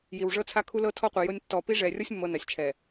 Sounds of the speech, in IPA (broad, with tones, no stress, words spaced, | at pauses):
ji˨wʐɤ˦t͡sʰa˦ kʰu˦lɤ˦ tʰɔ˦qʷi˨jɤ˦nʲ tːɔ˨ pi˦ ʐɛ˨rʲɔ˦sʲmːɤ˨ na˨sʲt͡ʃʰɛ˨